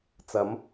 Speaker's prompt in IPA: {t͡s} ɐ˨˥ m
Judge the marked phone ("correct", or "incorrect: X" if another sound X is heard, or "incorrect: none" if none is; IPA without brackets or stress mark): correct